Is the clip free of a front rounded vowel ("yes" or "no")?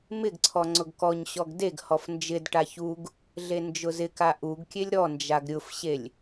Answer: yes